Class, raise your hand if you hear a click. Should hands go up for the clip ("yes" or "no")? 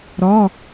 no